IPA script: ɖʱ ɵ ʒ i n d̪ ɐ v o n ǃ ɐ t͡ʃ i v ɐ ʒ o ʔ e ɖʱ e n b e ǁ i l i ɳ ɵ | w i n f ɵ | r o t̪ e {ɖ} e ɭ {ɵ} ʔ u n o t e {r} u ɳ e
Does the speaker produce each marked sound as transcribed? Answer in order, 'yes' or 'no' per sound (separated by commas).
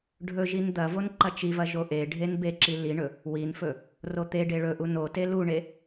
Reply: yes, yes, no